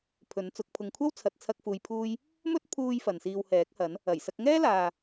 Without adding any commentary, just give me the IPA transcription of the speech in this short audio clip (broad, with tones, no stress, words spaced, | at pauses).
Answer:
pʰɵ˨˥nt͡sʊ˨˥k̚pʰʊ˧ŋ kʷʰɐ˥wt͡sʰɐ˨t̚ t͡sʰɐ˥k̚fuː˧jpʰuː˥j | mɵ˥t̚pʰuː˧j fɐ˨nsiː˧whɛː˨˥k̚hɐ˨˥n | ɐ˨˩jsɐ˧k̚ŋɛː˥laː˨